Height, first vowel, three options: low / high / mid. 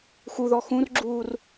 high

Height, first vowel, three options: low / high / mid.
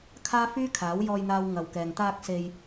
low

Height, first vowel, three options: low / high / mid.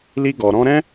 high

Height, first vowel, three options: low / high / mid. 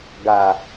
low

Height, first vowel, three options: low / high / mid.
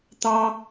low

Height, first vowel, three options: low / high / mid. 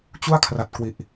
high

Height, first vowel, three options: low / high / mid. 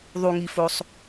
high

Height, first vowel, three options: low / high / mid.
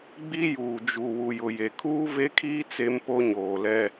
high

